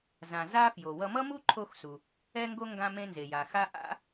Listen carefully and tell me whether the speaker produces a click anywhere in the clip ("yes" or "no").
yes